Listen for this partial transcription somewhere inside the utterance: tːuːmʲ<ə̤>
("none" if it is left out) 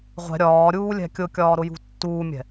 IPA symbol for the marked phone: ɛ̤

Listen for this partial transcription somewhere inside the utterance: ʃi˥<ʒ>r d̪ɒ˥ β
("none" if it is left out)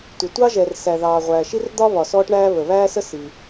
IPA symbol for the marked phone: none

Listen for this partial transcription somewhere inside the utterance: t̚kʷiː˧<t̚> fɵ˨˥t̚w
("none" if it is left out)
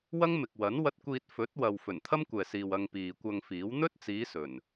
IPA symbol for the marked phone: t̚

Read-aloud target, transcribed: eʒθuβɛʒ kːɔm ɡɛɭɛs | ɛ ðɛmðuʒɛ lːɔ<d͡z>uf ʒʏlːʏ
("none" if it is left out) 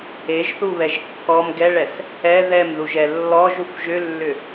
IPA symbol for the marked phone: ʒ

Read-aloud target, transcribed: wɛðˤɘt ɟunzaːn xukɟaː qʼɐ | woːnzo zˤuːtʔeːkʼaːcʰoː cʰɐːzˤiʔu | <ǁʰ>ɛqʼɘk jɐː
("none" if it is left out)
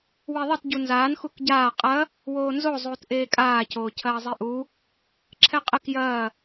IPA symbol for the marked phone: ǁʰ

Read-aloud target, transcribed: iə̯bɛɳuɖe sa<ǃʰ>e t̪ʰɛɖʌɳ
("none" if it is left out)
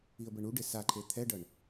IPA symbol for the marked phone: ǃʰ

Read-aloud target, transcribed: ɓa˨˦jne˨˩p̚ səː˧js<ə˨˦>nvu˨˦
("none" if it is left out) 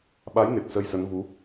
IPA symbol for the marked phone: ə˨˦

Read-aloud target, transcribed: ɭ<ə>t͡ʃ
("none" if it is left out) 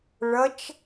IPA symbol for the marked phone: ʌ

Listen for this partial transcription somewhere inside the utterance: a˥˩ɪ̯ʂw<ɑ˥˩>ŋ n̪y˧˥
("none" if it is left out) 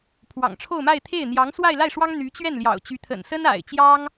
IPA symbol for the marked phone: ɑ˥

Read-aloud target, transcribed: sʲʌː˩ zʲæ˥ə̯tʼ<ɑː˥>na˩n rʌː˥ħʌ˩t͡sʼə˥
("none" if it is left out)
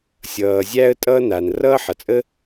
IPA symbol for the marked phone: ʌː˥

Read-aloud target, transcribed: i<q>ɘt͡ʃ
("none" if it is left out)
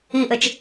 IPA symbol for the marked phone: ʔ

